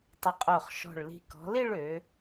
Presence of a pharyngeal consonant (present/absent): absent